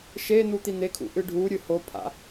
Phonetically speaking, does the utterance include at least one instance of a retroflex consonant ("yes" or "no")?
yes